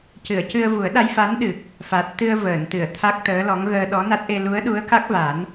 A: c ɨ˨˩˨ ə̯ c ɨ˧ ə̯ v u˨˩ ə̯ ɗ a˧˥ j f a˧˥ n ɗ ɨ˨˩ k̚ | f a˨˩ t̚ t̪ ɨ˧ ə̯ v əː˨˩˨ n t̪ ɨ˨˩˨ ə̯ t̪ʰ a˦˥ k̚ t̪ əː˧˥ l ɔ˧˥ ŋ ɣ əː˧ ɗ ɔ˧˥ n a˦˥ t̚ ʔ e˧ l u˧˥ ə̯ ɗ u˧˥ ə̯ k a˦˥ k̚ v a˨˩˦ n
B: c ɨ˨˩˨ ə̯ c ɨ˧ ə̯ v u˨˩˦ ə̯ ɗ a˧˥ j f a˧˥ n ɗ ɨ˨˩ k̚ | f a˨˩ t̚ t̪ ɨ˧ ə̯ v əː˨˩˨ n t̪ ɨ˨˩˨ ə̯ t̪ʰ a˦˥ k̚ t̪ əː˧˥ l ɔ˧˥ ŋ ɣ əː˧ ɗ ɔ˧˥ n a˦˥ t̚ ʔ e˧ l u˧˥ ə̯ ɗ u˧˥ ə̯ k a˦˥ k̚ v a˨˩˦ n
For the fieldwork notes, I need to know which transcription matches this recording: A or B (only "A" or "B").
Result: B